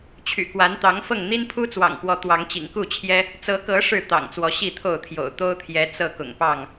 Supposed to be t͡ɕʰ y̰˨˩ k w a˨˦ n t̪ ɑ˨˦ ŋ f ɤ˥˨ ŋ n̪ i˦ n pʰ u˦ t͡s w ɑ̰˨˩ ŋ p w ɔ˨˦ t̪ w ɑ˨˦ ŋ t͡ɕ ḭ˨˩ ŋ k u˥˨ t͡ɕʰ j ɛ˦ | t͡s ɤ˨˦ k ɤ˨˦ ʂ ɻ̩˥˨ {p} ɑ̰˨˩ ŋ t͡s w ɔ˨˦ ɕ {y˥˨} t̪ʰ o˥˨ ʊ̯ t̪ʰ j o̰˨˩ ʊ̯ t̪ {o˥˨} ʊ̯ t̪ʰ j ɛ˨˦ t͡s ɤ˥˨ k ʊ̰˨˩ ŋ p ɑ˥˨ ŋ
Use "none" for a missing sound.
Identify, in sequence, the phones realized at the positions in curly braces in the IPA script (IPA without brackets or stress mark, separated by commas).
t̪, i˥˨, o˦